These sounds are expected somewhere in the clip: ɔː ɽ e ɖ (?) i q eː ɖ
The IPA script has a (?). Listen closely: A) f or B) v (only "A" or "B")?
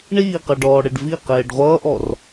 B